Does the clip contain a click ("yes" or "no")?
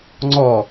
yes